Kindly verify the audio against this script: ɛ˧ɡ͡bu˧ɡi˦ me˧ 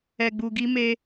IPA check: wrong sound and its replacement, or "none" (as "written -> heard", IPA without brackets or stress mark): none